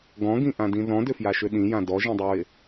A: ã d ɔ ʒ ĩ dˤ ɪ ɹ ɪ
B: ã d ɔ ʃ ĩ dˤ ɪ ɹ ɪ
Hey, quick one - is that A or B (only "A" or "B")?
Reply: A